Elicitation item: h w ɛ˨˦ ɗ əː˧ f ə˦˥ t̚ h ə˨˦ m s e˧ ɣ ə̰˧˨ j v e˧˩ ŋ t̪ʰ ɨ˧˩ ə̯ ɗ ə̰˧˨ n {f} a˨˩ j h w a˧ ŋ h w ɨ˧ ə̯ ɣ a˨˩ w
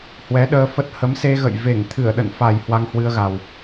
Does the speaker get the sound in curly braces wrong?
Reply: no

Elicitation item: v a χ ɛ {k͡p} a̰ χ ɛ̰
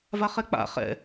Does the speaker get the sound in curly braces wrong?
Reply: no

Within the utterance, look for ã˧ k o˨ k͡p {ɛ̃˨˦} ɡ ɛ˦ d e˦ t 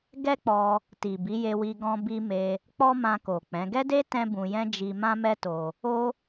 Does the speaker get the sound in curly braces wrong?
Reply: no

